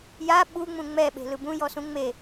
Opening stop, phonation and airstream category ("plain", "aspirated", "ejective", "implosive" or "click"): implosive